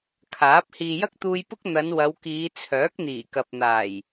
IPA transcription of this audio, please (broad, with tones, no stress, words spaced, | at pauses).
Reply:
kʰaː˨˥p̚ hiː˨jɐ˥k̚t̪uː˧j pʊ˥k̚ n̪ɐ˨˧n wɐ˨˧wkiː˨˧ t͡sʰœː˨˥k̚n̪iː˨˩kɐ˨p̚n̪aː˨˩j